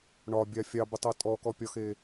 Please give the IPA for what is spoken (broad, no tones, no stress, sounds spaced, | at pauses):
ɳ ɒ bʲ a fʲ ɑ b ə tˤ ɤ tʼ ɔ k ɔ pʲ ɒ x e